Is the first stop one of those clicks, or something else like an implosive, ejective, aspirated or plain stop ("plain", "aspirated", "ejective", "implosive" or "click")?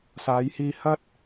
plain